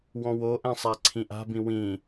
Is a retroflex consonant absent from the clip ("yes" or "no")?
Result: yes